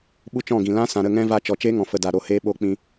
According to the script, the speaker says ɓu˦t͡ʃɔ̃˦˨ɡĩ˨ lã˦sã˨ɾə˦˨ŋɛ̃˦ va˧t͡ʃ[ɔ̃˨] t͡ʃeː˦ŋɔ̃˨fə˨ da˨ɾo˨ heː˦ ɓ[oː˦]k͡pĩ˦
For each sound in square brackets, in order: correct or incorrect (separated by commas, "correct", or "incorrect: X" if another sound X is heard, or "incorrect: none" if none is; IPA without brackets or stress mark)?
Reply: incorrect: ɔ˨, incorrect: o˦